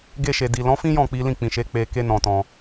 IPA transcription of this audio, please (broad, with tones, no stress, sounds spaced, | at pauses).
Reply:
ɡ e˧ ʃ e˨ d i˨ l ɔ̃˨˦ f ĩ˦ j ɔ̃˦˨ k͡p i˨˦ l ĩ˦˨ k͡p ĩ˨ ʃ e˨˦ k͡p e˧ k e˦ n ɔ̃˧ t ɔ̃˧